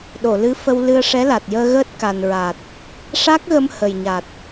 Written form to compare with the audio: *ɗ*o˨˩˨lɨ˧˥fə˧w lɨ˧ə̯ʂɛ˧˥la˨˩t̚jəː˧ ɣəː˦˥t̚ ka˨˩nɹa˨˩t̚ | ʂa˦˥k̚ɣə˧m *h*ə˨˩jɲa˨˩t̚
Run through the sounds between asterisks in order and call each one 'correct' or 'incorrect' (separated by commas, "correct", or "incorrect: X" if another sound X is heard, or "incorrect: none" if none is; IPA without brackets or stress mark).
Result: correct, correct